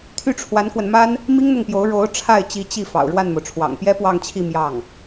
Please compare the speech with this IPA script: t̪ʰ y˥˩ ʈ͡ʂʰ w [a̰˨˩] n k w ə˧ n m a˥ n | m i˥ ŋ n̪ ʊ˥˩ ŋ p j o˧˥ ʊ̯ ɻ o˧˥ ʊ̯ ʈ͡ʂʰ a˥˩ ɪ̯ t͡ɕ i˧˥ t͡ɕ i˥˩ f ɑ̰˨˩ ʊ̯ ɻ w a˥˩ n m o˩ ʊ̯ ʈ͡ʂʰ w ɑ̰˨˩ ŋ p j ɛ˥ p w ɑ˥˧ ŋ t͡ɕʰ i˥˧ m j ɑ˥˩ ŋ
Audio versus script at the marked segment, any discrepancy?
yes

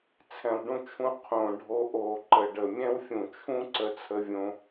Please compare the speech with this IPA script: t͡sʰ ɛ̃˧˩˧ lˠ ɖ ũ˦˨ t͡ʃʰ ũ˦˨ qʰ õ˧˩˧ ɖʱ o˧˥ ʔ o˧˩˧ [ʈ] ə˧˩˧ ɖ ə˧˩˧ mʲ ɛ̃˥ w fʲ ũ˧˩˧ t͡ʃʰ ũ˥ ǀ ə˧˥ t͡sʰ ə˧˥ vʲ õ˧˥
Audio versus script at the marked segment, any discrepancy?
yes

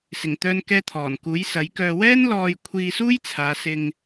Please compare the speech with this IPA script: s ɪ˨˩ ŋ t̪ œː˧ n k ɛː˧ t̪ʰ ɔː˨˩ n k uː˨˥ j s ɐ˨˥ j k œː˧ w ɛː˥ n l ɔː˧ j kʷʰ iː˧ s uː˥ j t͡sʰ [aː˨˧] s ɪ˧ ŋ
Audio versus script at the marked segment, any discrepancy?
no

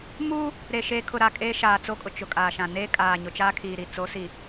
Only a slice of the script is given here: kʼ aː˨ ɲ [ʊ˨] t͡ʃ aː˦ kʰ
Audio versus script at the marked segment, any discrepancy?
no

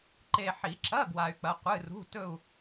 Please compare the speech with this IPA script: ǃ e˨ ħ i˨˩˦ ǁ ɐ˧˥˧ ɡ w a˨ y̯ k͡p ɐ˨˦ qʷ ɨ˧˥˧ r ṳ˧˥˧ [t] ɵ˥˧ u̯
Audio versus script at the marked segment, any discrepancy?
no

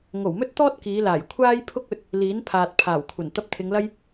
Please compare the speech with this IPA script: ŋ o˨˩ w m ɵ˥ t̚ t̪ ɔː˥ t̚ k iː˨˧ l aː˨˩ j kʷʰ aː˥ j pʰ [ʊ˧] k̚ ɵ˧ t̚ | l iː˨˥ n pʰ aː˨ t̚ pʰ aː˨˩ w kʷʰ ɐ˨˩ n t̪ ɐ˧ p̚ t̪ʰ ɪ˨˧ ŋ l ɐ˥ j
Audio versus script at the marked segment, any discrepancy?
yes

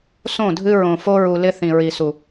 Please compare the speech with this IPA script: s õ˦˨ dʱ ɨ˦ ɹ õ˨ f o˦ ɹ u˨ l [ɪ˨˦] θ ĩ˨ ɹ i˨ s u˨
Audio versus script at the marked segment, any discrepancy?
yes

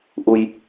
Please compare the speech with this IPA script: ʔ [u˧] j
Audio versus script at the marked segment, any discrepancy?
no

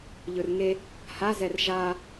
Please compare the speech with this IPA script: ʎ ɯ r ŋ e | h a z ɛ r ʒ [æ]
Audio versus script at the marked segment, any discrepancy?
yes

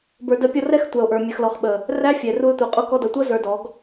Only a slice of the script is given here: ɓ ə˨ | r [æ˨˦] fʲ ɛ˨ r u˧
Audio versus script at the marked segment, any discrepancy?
yes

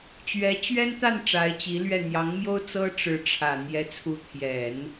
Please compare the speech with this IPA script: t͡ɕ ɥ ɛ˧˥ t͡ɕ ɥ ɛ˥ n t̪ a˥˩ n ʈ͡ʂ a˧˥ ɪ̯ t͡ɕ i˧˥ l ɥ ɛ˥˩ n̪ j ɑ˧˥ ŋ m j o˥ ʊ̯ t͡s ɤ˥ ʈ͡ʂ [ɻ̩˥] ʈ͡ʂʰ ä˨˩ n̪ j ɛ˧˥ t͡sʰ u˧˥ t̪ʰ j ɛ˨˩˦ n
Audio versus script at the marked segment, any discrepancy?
yes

